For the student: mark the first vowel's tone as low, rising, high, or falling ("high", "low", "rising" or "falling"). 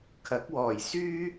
rising